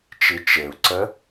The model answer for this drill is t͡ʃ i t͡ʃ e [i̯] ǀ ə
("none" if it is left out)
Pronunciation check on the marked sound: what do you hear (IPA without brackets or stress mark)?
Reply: u̯